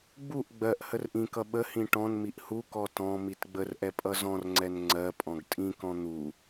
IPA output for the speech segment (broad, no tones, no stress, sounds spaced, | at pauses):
ɡ͡b u ʔ ɡ͡b ɜ ʔ h ə r ʔ ĩ k ʌ ɓ ə h ĩ ʈ ɔ̃ n m i ʔ h u k ɔ t ɔ̃ m i t ɡ͡b ə r ʔ ɛ pʼ ʌ z ɔ̃ r ŋ͡ǀ ɛ n ŋ͡ǀ ɜ pʼ ɔ̃ ɡ tʼ ĩ k ɔ̃ n̪ u